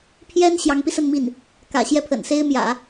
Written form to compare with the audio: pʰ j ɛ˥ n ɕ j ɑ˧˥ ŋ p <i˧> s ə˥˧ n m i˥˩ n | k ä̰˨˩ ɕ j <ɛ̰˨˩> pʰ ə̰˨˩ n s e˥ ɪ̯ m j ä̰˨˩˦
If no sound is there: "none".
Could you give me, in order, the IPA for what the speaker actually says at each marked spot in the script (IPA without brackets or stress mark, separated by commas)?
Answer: i˧, ɛ˥˩